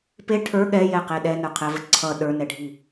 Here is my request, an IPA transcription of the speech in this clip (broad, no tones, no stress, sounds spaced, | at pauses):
p e ʈʰ ə˞ ɠ ɛ j ɛ q e ɗ ɛ n ə˞ qʰ ɛ v ə ǀʰ ʌ ɗ ə˞ n ɛ ɖʱ i